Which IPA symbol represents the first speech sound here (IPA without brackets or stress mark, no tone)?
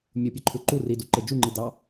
mʲ